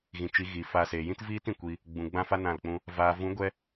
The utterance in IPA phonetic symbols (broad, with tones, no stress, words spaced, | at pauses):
ɣĩ˨t͡ʃi˨˦ ɣi˨fa˧ seː˨jĩ˦tviː˦t ĩ˨kʷi˧ | ɡ͡bũ˨ ɡ͡bã˦fa˦nã˦˨lk͡pũ˦ | vaː˨vũ˨˦ɡʷɛ˧